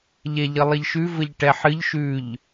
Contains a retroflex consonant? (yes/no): yes